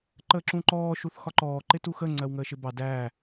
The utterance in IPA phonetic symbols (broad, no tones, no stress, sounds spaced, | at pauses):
ǃ əː ǁ ũ ǃ ɔː ʃ u θ x ɒ ǃ ɔː ǃ ɪ t u x ə ŋ͡ǀ ɜ w ŋ əː ʃ ɪ b ɑ d æː